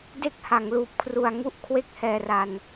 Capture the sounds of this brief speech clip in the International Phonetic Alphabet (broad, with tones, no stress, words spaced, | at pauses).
de˥˩k̚ha˩˦ŋluː˨˩p̚kʰru˨˩a̯ ŋu˥˩ʔkʰwe˥˩k̚ hɛː˧ra˧n